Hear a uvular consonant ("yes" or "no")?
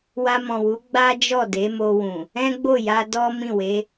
no